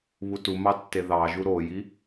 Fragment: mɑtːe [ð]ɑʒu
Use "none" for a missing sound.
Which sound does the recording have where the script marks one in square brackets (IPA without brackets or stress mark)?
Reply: ð